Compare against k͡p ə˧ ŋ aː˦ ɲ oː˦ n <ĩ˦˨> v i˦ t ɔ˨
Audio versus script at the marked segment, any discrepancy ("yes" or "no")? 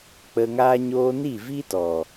yes